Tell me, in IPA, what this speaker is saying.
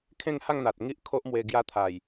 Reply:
kʰ ẽ˥˧ ŋ h a˥˧ ŋ n̪ a˨ t̚ ŋ i˦ ʔ kʰ o˦ ʔ m w e˧ ɡ j a˧ t̪ʰ a˨˩ j

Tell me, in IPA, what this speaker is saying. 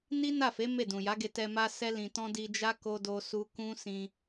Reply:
n i˦ n a˦˨ f e˨˦ m e˦˨ d ũ˨ j a˨˦ ɡ e˧ t ɛ˧ m a˦ s ɛ˦ l ĩ˧ t ɔ̃˦ d i˧ d͡ʒ a˦ k o˦ d o˦ s u˦ k ũ˦ s ĩ˧

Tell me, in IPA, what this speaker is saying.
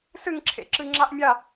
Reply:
s ɨ ŋ ǁʰ ḛ ǁ ɨ ŋ͡ǁ a ʔ mʲ a

